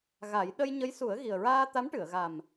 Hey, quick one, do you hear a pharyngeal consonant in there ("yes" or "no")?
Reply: no